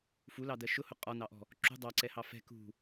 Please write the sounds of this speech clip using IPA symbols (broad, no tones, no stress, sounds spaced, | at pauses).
f u l ɑ d ɜ ʃ ʊ h ʊ qʼ ɒ n ɑ ʔ ɔ̤ | ǁ ṳ dˤ ɑ ǀ ɛ h ɑ f ɛ̤ k ṳ